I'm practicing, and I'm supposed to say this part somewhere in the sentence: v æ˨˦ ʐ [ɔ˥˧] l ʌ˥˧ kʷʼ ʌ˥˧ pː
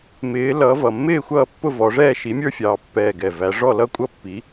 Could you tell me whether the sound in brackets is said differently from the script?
no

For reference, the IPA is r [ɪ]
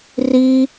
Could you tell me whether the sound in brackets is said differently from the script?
yes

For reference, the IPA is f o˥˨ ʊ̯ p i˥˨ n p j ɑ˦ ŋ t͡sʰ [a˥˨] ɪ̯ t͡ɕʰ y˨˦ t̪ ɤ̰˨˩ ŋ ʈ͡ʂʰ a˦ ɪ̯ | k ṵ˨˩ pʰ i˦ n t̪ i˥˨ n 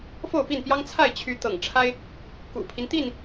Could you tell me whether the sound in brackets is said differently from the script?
no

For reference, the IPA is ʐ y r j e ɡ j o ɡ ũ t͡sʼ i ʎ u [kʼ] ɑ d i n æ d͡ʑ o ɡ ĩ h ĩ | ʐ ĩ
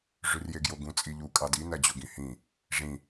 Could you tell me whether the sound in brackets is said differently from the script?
no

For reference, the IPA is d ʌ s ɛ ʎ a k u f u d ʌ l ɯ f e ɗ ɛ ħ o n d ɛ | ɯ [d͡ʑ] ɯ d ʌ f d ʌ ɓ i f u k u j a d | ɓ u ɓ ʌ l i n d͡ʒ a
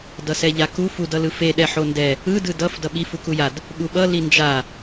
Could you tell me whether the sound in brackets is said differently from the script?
yes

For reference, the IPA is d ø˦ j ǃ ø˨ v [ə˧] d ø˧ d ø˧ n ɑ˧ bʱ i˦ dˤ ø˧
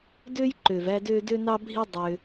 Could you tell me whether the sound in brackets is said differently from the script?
yes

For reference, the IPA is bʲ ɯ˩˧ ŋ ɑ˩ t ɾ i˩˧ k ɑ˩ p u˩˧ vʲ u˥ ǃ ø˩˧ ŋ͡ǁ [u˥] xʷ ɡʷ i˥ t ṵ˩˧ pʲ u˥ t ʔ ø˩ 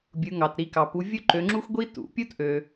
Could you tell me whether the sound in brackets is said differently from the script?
no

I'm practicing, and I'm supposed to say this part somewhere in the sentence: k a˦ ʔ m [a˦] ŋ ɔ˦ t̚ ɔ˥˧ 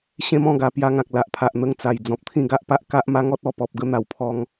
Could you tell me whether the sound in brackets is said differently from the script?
no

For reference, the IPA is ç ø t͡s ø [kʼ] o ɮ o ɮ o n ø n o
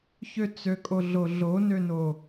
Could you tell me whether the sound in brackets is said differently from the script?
no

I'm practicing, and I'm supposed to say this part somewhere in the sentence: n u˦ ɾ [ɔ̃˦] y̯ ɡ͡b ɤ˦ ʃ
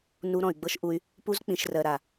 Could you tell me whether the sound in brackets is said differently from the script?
yes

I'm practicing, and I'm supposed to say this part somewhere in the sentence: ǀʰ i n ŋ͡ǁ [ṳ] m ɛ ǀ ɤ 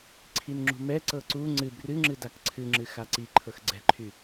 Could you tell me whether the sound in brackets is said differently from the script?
no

